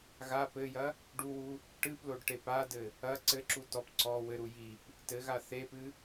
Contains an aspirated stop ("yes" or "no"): no